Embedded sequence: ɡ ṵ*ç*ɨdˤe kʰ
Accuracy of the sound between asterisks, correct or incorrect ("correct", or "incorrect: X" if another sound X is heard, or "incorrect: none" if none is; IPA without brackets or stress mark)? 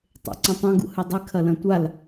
incorrect: h